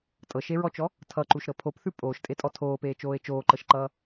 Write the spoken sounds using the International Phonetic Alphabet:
tʼɤʃeɹɔt͡ʃɔ | tʰʌǃuʃɾɤ pʰopθʉ pʼoːʃtʼetʼɔ tʰoːpeːt͡ʃoːe̯ t͡ʃoːǃɤʃǃʌː

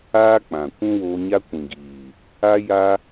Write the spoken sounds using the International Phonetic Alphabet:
aː˦k͡pã˨ kʷũ˦woː˧ɲa˦ kʷĩ˨ɡiː˨ | a˦ ja˦

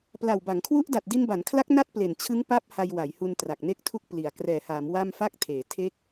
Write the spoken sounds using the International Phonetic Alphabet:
pla˨˩wba˩˦ŋkʰwu˦˥ʔ da˨˩t̚di˧nba˩˦nkʰla˦˥k̚ na˥˩t̚ple˨˩nt͡ɕʰɯ˦˥ŋ pa˦˥p̚ ha˧jwa˩˦jhu˧n tra˨˩k̚ne˥˩k̚tʰu˥˩k̚ pli˨˩a̯ krɛː˨˩haː˩˦m wa˥˩mfa˥˩k̚ tʰeː˩˦ tʰe˥˩k̚

